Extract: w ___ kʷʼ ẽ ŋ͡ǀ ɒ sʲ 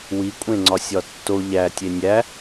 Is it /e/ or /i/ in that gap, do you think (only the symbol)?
i